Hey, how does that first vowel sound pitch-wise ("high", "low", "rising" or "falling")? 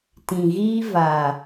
low